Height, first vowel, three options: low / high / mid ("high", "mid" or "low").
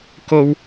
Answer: mid